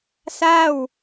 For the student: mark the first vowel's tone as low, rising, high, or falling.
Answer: falling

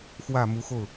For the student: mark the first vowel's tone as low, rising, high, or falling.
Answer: low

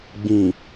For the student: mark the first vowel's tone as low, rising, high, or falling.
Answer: low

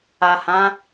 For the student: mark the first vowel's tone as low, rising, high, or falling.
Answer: low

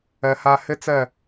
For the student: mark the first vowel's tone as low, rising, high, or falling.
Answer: low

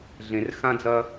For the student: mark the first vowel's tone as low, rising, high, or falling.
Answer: low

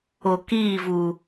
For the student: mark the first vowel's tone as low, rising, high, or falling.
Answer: low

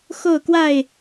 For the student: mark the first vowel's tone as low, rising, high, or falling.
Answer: falling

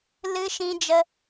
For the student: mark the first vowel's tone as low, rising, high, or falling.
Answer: high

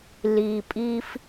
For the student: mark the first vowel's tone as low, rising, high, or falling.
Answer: low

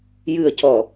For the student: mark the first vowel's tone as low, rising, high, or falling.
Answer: low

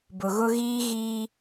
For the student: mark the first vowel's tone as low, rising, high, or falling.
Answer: low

